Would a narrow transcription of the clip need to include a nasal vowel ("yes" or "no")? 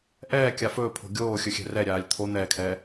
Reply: no